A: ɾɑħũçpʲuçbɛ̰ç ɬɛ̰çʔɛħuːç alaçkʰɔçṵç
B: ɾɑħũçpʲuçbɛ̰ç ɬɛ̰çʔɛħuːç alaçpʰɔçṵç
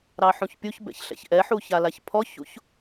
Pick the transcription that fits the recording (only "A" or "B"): B